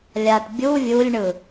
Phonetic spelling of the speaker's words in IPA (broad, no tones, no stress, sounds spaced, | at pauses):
lʲ a ʈ bʲ u vʲ u lʲ ɳ ɯ